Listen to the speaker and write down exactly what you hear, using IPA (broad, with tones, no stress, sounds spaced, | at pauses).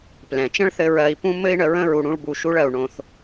p l ɛ̃˩ t͡ʃ ə̃˥ ɭ θ ɘ˧ ɹ ɜ˧ i̯ p ũ˥ m ɘ˥ i̯ ɳ ə˩˧ ɹ ə̃˥ ɹ u˧ ɽ ũ˧˥ ɭ b u˧ ʃ u˧˥ ɭ ɜ˩ u̯ ɳ õ˩ θ